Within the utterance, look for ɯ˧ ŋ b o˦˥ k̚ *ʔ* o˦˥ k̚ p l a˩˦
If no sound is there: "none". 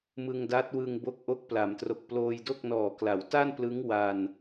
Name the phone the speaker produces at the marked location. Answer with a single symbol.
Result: ʔ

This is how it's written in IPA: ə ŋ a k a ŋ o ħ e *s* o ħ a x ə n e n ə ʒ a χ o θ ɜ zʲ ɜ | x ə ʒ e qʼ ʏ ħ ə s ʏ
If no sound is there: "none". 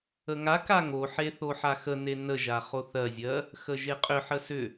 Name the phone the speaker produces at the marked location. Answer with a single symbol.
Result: θ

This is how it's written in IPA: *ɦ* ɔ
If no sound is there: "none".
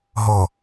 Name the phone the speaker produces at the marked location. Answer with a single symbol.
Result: ɦ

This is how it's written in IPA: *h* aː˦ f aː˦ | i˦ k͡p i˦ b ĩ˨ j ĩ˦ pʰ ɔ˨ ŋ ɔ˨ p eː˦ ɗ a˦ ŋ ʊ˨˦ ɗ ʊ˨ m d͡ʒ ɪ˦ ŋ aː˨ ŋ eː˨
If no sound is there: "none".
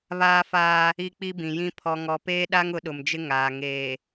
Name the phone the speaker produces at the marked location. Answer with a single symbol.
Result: β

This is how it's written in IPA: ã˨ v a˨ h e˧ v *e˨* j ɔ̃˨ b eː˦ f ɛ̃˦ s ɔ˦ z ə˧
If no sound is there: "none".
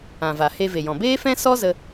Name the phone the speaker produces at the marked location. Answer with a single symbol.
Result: e˨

